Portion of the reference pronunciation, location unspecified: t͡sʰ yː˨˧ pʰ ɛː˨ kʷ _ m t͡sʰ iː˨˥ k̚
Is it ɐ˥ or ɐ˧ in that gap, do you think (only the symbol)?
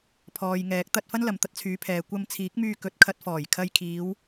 ɐ˧